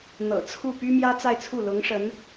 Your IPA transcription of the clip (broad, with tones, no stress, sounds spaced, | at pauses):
n̪ ɤ̰˨˩ t͡sʰ u˥˩ p y˥ m j ä˥ t͡s a˥˧ ɪ̯ t͡sʰ u˥˩ l ʊ˧˥ ŋ ʂ ə˧˥ n